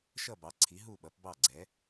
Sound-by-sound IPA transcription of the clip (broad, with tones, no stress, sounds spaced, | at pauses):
ʃ ʌ˧˩ b ɑ˩˧ ǀʰ i˩˧ ɦ u˧˩ ɓ ʌ˩˧ p b ɑ˧˩ ɡ͡ǀ ɛ˩˧